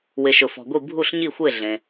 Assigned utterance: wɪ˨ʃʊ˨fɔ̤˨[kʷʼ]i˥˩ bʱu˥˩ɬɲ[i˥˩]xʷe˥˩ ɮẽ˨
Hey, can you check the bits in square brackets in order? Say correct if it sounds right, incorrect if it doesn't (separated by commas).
incorrect, correct